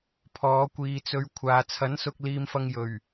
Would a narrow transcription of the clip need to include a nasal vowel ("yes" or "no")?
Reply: no